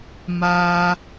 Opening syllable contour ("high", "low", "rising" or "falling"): high